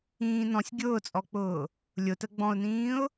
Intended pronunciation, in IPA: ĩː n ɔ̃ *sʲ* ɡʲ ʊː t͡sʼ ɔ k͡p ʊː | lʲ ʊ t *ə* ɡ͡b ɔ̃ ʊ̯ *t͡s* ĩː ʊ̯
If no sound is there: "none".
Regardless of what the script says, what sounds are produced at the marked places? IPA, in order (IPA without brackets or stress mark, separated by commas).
sʲ, ə, n